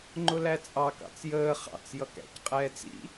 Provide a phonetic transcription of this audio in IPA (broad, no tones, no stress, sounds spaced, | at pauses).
ŋ͡ǃ ʊ l æ t͡sʼ ɑ k ɑ̰ t͡s j əː χ ɑ̰ t͡s j ʌ k æ̰ c qʼ ɛː t͡s ḭ